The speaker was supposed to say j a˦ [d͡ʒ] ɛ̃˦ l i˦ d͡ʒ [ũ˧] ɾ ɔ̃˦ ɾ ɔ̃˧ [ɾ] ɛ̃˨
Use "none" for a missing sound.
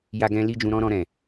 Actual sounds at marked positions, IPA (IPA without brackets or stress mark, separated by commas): ɡ, ũ˧, ɾ